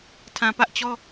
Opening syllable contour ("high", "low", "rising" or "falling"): low